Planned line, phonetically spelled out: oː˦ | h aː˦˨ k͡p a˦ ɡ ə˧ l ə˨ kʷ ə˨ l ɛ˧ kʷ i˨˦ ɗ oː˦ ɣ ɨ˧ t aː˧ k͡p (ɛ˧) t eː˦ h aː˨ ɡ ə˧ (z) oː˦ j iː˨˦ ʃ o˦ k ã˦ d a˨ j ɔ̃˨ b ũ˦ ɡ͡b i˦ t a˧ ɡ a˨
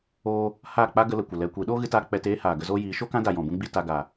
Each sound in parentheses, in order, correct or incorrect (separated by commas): correct, correct